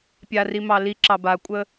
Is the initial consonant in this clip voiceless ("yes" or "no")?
yes